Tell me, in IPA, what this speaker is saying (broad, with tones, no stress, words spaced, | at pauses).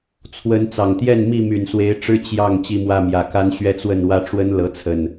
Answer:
t͡sʰwə˨˦nt͡sɑ˨˩ŋt̪jɛ˥˨n mi˥˨my˨˩nswe˨˦ɪ̯ʈ͡ʂɻ̩˦ t͡ɕjɑ˥˨ŋ t͡ɕi˥˨mwä˥˨mjä˨˩ ka˦nɕɥɛ˦t͡swə˥˨nwä˦ ʈ͡ʂwə˦n lɤ˨˦t͡sʰə˨˩n